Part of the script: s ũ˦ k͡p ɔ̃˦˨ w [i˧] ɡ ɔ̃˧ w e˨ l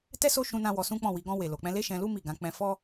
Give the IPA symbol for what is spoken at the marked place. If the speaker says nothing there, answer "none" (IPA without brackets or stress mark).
i˨˦